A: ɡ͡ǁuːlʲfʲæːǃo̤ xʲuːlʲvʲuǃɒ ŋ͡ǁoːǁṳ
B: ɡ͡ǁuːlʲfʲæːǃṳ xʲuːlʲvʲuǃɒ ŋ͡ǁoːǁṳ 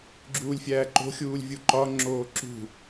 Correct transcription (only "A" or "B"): A